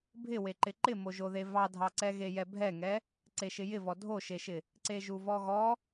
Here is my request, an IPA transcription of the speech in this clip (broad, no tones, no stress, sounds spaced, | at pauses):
bʱ ɪ w e ǃ ɪ ǃ ɪ m o ʒ o ð e v ɑ dʱ ɑ ǀ ɛ ɣ e j ɛ bʱ ɛ ŋ ɛ | ǀ e ʃ ɪ j ɪ v ɔ dʱ o ʃ e ʃ ɪ | ǀ e ʒ u v ɔ ɣ ɔ